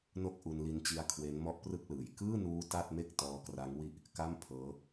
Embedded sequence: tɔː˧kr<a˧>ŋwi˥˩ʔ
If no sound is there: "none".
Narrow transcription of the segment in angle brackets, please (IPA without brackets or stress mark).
a˦˥